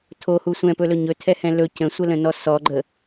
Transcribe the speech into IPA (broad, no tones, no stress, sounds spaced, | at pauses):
tʰ o h u sʷ ɛ̃ p ɵ l ɵ ɲ ɵ tʰ ɛ h ɛ̃ l ɵ c ə̃ sʷ ə l ə̃ n ɔ s ɔ ɡ͡ǃ ə